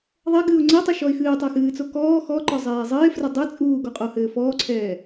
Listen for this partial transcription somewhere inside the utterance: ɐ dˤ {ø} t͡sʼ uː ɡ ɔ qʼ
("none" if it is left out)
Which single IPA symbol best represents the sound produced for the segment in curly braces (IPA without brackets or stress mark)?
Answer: ɛ